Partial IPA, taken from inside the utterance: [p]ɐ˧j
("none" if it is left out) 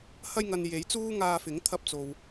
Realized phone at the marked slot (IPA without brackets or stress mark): h